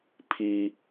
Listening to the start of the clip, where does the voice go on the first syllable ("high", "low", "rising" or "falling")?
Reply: high